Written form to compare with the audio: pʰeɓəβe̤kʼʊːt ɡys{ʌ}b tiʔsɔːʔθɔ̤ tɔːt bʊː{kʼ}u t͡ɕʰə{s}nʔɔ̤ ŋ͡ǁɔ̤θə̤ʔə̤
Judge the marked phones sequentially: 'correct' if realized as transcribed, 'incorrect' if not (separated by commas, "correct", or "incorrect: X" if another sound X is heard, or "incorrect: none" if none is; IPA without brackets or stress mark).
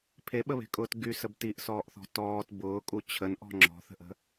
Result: incorrect: ə, correct, incorrect: none